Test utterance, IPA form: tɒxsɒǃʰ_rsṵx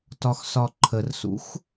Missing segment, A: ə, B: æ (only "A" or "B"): A